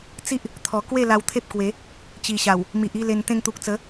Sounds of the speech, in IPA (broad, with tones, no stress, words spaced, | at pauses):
t͡si˦ʔ | t̪ʰɔ˨˩kwe˥˧ la˧wt̪ʰe˦p̚kwe˨˦ | t͡ɕi˨˩ɕa˨˩w | mi˨ʔi˥˧le˧n t̪ẽ˧ŋt̪u˨k̚t͡sə˨˦